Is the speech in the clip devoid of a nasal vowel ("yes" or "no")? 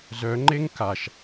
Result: yes